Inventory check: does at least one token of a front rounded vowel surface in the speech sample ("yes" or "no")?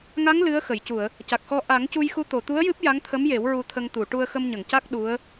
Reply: no